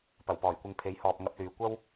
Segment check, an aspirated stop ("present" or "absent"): present